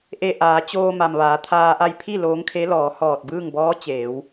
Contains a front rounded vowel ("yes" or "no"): no